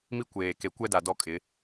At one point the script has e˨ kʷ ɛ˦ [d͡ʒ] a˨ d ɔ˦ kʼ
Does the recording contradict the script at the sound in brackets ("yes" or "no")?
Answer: yes